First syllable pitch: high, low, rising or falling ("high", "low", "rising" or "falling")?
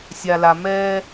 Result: low